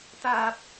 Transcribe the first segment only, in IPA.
t̪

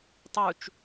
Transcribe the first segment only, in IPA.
tˤ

